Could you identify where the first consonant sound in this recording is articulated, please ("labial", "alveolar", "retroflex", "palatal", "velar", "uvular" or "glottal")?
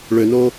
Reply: retroflex